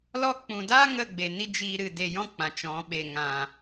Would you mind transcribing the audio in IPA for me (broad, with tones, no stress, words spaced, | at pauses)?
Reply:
lɔ˧k͡pũ˨daː˦ ŋə˦˨ ɡ͡be˨ni˦d͡ʒiː˧ɾɨ˨ de˨jɔ̃˦˨ k͡pã˨t͡ʃɔ̃˨˦ ɓe˨ ŋã˨